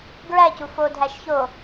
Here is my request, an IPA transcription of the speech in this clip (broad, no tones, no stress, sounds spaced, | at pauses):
ɡ ɹ æ c u f o dʱ æ ʃ ç o